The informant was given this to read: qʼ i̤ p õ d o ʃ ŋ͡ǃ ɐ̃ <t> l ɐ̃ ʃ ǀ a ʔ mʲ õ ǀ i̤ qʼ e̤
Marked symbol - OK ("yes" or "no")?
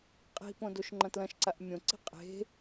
yes